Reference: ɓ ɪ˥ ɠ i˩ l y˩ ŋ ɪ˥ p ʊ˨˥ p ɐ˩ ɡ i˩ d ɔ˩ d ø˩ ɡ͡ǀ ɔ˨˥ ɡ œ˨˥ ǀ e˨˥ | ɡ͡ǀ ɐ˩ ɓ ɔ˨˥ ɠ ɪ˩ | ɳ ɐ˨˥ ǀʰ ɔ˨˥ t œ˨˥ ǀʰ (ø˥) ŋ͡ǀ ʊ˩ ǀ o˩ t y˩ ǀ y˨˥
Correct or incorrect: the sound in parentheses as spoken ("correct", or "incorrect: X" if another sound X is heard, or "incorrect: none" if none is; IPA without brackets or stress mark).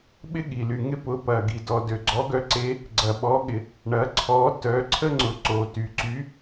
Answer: incorrect: ə˥